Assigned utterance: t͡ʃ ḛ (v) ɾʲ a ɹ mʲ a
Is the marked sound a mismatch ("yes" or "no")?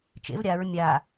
no